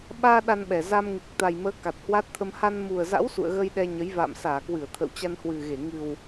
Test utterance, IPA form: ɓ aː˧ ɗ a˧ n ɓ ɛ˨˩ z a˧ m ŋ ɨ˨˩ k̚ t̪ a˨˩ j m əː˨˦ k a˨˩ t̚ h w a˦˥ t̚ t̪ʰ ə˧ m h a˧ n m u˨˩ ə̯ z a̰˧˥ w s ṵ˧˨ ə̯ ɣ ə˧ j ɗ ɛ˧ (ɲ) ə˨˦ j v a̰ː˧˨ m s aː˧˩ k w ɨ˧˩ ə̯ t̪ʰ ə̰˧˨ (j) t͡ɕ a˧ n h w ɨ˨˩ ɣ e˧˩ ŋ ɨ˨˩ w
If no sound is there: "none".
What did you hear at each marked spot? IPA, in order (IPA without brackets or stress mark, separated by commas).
ɲ, w